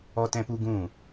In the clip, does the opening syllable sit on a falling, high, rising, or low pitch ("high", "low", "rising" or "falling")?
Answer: high